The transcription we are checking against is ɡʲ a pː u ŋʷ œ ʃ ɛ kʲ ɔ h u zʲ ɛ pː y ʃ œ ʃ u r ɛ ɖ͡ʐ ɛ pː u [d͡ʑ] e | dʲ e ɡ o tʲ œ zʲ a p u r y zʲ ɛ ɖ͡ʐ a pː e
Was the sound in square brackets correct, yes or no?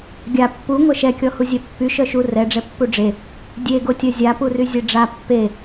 no